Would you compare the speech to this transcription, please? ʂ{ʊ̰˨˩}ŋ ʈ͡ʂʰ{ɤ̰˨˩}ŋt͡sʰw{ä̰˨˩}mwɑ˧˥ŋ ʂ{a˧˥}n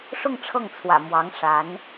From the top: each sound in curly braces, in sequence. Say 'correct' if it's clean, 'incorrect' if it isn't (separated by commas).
incorrect, incorrect, correct, correct